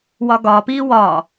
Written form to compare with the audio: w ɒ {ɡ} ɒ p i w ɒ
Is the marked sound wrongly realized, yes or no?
no